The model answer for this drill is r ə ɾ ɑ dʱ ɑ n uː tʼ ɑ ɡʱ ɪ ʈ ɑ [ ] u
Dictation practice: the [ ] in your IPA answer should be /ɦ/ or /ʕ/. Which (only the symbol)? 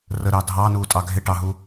ɦ